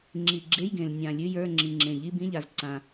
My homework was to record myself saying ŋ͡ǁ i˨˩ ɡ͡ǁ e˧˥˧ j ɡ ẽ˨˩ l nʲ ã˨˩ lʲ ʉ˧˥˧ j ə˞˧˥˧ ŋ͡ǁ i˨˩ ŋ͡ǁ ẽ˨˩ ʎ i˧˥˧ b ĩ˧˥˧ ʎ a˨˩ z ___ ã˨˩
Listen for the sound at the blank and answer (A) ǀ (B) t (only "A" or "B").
A